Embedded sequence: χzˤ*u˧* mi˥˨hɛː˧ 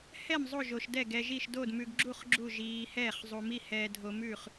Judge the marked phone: correct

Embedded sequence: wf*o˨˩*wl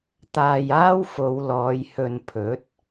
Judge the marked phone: incorrect: o˨˧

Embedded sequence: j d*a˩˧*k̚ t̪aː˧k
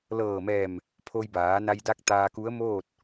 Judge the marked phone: incorrect: a˧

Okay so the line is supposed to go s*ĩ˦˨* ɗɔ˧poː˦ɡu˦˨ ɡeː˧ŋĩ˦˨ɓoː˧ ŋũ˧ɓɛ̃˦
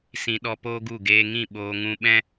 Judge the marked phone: incorrect: ĩ˨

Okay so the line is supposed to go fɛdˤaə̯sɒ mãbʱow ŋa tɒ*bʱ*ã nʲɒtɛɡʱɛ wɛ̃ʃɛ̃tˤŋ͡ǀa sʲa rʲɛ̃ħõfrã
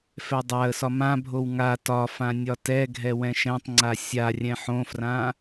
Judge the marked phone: incorrect: f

